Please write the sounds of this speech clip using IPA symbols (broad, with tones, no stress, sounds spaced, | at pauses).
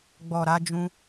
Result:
ɡ͡b ɔ˨ ɾ a˧ d͡ʒ ũ˧